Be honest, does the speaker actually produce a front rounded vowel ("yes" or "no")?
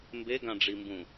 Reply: no